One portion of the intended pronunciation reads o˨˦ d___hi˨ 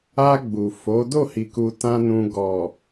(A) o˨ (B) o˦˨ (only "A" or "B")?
B